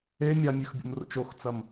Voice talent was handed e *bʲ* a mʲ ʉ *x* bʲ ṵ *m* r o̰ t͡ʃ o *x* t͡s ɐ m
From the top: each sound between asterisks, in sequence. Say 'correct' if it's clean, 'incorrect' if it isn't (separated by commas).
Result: incorrect, correct, correct, correct